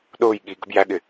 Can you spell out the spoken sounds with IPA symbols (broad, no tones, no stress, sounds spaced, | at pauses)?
ɗ ʊː j ɠ i ɡ ə̤ b j æ ɠ ɪ